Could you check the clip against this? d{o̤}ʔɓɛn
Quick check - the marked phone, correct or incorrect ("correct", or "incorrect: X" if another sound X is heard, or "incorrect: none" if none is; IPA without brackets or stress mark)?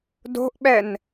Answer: correct